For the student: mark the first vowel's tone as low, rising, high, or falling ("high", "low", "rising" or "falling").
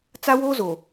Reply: high